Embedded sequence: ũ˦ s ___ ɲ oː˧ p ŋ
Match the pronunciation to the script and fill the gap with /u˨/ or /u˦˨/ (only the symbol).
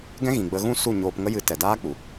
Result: u˦˨